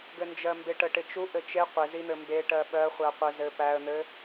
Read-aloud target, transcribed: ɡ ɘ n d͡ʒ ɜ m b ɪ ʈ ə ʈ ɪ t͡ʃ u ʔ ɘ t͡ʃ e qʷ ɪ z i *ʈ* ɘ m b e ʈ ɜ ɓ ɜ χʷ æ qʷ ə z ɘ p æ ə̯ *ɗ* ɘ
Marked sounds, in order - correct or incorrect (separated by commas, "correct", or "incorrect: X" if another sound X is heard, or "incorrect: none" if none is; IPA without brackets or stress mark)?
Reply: incorrect: n̪, incorrect: n̪